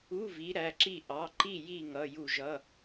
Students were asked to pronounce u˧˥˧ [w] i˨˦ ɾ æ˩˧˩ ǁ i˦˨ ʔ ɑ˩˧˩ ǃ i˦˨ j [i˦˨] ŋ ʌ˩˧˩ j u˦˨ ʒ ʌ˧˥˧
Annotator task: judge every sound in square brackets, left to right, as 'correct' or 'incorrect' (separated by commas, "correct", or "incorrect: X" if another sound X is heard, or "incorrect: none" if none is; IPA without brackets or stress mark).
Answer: incorrect: v, correct